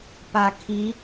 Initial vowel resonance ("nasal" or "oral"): oral